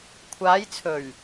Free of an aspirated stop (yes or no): no